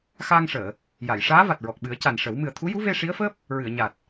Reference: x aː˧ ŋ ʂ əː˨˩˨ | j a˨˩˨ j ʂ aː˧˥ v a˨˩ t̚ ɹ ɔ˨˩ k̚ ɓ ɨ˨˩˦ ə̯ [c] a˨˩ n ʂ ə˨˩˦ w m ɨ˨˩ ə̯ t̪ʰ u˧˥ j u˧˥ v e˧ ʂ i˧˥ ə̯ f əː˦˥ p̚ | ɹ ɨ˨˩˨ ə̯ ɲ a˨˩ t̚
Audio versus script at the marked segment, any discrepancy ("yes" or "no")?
no